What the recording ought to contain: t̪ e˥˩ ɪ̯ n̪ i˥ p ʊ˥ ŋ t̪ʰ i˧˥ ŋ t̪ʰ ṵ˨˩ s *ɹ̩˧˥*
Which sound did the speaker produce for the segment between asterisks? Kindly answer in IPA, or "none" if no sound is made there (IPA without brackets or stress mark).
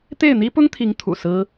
ɹ̩˥